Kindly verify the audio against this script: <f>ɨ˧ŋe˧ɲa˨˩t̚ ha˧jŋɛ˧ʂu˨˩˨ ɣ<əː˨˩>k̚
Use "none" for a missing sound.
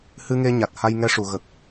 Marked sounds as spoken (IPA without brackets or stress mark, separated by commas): h, ə˨˩